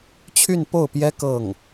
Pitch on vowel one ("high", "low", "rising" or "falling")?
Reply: falling